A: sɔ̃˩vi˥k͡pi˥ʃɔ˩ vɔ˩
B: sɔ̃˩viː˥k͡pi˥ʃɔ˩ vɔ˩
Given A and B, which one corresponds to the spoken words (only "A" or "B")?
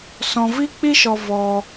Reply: A